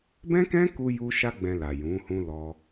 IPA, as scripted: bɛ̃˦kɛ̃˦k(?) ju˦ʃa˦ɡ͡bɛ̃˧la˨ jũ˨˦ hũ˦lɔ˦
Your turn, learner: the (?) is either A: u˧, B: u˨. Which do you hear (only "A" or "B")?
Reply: A